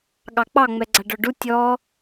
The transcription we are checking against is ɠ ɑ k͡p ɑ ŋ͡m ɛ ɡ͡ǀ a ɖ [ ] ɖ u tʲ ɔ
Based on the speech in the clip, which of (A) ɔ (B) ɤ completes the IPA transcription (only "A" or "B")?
A